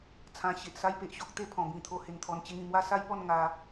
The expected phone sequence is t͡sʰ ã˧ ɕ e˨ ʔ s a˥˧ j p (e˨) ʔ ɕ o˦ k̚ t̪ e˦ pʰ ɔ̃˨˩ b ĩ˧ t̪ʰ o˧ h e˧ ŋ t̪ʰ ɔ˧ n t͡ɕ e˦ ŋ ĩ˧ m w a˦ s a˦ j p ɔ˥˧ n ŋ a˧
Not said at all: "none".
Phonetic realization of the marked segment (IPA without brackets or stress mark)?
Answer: e˦